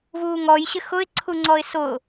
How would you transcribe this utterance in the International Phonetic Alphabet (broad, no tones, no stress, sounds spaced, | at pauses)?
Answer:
v uː ŋ ɔ j ɕ ɪ x ʊ ɪ̯ ǀʰ u ŋ͡ǀ ɔ ɪ̯ s ʊ